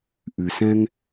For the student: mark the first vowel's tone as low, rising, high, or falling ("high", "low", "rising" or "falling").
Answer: low